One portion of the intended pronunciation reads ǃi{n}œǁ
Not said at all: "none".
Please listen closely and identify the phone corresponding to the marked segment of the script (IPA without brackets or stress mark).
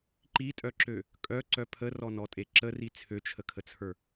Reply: tʼ